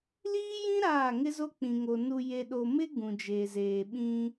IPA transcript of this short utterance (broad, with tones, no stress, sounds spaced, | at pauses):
l iː˦ j ĩ˦ ɾ aː˦˨ ŋ ɪ˦ z o˦ k͡p ĩ˨ ŋ o˨ n u˨ j e˨ ɗ o˨ m ɪ˦ ɡ ũ˨ d͡ʒ eː˨ z eː˨ ɓ ĩ˦